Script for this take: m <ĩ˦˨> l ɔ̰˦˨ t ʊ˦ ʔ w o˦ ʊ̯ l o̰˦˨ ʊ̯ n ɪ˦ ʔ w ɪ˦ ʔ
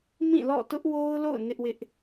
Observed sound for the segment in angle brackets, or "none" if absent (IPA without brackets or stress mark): ĩ˦˨